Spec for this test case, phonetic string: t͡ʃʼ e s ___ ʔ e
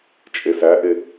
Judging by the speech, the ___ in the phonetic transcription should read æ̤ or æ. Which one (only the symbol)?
æ